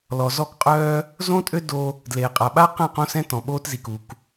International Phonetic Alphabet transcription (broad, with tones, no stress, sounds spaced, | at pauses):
l ɔ˨ z ɔ˦˨ k qʼ œː˦ | z õ˦ tʼ ø˦ d o˦ | d l eː˨ qʼ a˨ ɓ a˦ q ɛ̃˦˨ q õ˦ s ɛ̃˦ t ɔ̃˨ ɓ oː˦ t z i˨ k u˨ k